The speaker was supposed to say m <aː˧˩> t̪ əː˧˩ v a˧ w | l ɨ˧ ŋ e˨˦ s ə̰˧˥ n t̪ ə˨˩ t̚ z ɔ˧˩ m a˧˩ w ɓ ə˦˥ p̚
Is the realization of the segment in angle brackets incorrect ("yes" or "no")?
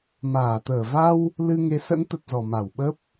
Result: no